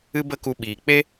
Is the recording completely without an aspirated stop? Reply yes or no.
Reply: yes